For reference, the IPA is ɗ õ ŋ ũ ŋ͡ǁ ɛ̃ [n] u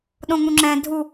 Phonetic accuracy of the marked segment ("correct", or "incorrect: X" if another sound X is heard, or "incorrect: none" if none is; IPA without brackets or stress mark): incorrect: dʱ